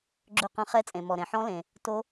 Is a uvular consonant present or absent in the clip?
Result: present